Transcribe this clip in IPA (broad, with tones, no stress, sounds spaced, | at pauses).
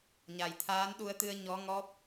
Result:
ɲ a˨˩ j t̪ʰ aː˧˥ n ɗ u˧ ə̯ t̪ ɨ˧ ə̯ ɲ ɔ˧˥ ŋ ɔ˦˥ p̚